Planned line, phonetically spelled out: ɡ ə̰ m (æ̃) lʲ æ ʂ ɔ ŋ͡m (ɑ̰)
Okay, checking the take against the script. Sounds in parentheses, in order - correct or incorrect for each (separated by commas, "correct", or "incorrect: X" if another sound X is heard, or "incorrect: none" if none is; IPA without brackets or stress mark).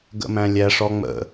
correct, incorrect: ə̰